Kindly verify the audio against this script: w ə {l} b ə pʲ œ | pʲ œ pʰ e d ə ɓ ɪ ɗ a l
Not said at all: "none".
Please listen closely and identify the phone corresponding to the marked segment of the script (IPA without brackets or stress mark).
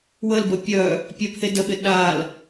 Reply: l